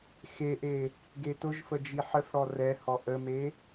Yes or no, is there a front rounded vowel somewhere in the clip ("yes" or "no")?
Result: no